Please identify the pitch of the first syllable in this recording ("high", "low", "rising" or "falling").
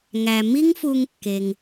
low